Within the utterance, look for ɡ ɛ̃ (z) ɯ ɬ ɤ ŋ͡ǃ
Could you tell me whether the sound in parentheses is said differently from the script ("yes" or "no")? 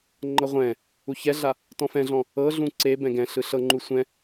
yes